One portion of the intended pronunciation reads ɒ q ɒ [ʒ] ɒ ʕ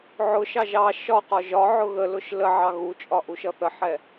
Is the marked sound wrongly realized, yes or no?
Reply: no